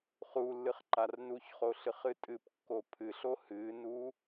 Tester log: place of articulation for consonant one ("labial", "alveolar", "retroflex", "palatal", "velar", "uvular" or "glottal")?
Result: uvular